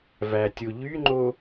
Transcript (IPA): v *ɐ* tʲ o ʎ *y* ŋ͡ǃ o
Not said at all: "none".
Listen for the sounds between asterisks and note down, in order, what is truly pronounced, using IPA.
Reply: æ, y

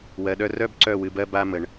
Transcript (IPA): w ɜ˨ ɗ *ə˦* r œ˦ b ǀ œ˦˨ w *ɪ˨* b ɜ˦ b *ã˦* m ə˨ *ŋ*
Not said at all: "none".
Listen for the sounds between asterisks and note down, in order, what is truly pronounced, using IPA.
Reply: œ˦, ɨ˨, a˦, ɳ

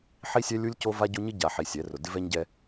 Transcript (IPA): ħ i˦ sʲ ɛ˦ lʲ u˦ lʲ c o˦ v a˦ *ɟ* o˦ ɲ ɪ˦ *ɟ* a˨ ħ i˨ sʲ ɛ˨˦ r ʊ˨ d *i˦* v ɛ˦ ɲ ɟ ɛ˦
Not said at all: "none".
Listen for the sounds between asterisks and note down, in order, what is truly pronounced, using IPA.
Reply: ɟ, ɟ, ɪ˦

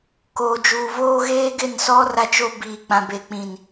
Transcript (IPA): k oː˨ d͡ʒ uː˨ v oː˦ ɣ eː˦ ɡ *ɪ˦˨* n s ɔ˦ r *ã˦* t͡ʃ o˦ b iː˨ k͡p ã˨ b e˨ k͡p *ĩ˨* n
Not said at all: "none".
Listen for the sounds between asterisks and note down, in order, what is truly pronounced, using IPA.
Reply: ɪ˦˨, a˦, ĩ˨

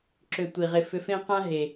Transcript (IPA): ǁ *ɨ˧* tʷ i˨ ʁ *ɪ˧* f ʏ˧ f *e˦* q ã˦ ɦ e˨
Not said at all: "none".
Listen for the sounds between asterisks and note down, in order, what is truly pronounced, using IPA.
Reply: ʏ˧, ɪ˧, ẽ˦

